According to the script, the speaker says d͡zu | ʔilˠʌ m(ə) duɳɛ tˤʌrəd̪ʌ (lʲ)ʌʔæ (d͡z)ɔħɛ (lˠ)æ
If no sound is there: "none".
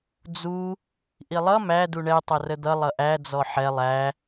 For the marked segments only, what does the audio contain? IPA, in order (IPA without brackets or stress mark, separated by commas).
æ, lˠ, d͡z, lˠ